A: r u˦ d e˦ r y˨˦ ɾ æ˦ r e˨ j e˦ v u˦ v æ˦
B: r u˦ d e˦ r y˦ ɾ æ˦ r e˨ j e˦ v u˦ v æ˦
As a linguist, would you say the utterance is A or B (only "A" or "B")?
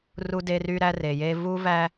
B